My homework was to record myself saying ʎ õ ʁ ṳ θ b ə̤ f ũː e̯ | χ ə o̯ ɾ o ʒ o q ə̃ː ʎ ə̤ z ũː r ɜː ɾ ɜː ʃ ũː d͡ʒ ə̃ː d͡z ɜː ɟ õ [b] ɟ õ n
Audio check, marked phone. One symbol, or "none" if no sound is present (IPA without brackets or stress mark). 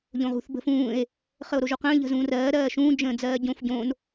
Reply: f